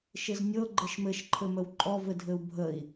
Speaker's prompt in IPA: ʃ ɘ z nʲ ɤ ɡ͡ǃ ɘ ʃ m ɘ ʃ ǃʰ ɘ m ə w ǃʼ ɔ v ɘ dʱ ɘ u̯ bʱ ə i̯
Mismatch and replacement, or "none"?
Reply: none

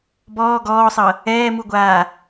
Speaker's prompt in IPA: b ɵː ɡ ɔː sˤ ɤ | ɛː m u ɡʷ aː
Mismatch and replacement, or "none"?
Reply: ɵː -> ɔː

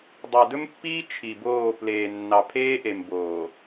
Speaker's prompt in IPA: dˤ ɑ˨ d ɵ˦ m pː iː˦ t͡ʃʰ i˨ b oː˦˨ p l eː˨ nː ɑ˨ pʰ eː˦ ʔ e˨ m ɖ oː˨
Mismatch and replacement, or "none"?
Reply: ɖ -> b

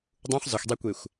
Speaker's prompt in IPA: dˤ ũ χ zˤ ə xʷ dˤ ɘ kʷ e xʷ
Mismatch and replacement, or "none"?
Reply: ɘ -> e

